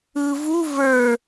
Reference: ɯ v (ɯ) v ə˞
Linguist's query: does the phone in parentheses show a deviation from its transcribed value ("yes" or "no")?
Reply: yes